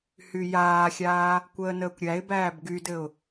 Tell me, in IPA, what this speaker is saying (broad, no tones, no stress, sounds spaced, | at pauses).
h y j aː xʲ aː | kʷ əː n əː kʷ ɾʲ æ ɪ̯ b æː b ɡ y d ɘ ʊ̯